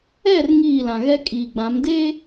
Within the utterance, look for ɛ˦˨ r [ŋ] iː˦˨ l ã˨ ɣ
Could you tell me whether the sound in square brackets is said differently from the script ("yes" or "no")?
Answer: no